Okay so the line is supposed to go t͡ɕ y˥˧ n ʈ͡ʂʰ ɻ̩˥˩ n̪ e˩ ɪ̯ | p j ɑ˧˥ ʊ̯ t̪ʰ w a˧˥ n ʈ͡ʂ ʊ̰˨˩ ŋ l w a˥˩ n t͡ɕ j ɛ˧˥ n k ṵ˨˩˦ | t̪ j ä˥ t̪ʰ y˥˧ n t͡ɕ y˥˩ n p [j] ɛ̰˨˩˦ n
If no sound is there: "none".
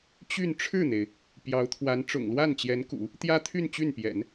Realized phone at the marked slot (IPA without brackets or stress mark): j